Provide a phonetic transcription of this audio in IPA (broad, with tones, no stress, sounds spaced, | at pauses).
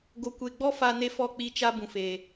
ɡ o˨ kʷ e˨ ɡ͡b ɔ˦ f a˨ n e˦ f ɔ˦˨ k͡p i˦˨ t͡ʃ a˦ b ũ˨ f eː˨